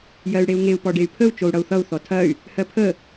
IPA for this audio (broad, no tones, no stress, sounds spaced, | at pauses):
j ɜ y̯ ɽ e u̯ ŋ e u̯ p ɔ ɖ e y̯ pʰ ə u̯ t͡ʃ o u̯ ɽ ʌ u̯ θ ʌ u̯ θ ɔ tʰ ɐ y̯ | h ɜ pʰ ə